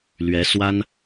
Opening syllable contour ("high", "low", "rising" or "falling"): rising